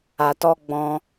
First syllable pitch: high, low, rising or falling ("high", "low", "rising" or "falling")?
low